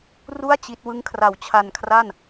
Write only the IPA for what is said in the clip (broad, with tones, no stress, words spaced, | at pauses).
ru˥˩a̯ t͡ɕi˦˥t̚ wɯ˦˥ŋkʰra˨˩w t͡ɕʰa˧nkʰra˥˩n